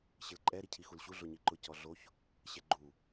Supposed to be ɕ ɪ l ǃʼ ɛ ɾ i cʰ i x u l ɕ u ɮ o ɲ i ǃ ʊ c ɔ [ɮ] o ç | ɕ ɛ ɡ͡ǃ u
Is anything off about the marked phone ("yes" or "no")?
no